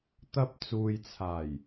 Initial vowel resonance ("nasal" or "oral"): oral